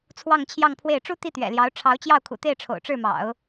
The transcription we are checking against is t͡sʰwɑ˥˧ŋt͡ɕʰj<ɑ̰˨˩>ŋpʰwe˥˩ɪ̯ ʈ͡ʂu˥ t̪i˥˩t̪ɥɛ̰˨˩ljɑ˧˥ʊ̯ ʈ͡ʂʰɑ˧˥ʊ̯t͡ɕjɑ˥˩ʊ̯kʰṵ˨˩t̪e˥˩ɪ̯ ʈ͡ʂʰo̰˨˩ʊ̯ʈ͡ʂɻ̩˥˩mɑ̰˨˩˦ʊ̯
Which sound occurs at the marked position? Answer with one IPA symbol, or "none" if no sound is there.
ɑ˥˧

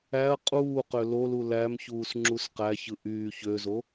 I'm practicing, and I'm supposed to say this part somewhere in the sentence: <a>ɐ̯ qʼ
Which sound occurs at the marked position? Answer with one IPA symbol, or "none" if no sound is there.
æ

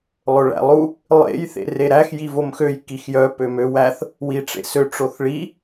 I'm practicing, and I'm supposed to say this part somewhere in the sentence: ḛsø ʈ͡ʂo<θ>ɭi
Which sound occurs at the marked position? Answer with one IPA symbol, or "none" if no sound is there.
θ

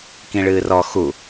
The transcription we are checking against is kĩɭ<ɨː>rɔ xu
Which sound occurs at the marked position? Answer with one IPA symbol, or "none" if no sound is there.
ɨː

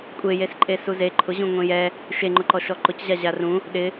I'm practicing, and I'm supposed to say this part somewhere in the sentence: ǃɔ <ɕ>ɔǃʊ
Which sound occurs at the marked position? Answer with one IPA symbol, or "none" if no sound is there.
ʃ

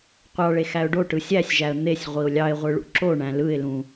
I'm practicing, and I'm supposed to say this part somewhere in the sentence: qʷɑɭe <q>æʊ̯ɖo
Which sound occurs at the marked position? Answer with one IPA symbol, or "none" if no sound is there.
x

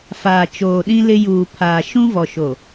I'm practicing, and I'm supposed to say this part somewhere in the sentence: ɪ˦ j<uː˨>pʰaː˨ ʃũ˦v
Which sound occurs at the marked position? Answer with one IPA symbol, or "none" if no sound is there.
uː˨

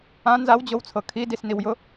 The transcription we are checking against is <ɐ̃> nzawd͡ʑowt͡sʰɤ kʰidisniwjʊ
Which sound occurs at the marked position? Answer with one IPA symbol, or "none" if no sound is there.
ã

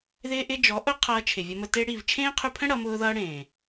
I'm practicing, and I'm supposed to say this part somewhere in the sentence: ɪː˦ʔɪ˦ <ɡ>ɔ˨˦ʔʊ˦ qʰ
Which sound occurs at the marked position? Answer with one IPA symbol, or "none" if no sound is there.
d͡ʒ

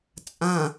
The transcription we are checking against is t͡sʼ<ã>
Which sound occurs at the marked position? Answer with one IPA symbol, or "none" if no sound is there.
ã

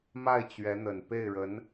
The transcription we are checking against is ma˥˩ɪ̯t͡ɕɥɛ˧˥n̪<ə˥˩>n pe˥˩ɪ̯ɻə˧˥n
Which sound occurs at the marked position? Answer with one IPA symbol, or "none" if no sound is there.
ə˨˩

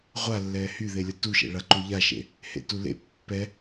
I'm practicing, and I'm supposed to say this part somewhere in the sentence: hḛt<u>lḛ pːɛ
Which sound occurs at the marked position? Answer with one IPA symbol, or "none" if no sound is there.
u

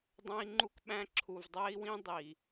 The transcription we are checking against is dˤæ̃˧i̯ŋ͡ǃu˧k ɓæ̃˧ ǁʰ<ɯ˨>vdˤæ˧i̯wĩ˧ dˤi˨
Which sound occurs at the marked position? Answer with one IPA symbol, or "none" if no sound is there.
u˨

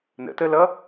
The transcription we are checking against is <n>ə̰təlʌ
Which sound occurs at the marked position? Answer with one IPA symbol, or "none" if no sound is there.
n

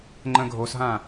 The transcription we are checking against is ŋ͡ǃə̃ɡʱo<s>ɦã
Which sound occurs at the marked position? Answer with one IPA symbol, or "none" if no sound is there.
s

